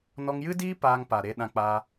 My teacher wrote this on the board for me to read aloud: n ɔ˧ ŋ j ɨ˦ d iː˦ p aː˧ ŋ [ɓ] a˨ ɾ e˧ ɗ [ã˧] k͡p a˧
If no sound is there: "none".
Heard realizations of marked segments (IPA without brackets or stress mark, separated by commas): p, ã˧